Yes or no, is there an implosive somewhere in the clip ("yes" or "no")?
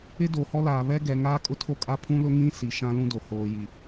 no